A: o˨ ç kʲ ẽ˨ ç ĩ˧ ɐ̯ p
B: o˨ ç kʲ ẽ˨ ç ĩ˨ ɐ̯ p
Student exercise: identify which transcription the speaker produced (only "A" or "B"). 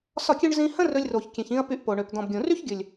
A